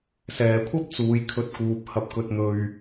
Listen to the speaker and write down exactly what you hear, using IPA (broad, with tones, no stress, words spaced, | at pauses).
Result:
sɛː˨kʷʰɐ˥p̚t͡suː˨jkʰɵ˨˥t̚ kuː˨p̚hɐ˧p̚ kɵ˧t̚n̪ɵ˧ɥ